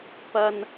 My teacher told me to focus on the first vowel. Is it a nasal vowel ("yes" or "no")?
no